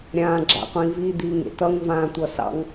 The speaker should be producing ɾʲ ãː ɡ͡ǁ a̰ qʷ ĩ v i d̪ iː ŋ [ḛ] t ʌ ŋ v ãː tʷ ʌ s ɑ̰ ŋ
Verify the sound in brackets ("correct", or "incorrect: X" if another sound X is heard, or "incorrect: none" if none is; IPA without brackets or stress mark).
correct